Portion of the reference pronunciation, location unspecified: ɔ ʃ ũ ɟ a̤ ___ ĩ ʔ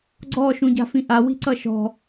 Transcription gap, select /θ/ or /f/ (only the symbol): f